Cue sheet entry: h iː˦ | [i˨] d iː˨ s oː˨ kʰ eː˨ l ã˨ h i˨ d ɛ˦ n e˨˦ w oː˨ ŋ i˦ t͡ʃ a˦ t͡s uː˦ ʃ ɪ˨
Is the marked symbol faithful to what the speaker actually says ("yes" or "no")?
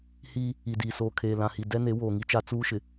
yes